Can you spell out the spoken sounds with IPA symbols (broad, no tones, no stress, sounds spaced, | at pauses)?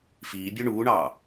f iː bʲ ø ɳ uː ɳ ɑː